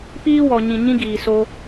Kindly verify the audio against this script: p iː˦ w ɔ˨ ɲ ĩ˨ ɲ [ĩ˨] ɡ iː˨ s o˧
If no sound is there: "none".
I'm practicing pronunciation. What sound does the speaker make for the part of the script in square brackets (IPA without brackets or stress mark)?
ĩ˦